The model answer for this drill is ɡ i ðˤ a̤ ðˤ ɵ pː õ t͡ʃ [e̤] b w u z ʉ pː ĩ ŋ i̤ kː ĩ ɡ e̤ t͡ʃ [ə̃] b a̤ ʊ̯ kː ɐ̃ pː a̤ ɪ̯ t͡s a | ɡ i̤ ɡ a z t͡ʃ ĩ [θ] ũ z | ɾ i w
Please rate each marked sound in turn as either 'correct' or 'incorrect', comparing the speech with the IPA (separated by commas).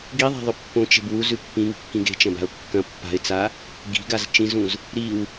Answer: correct, incorrect, incorrect